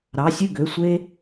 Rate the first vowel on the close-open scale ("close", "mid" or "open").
open